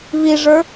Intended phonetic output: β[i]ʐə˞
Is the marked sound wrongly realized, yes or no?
no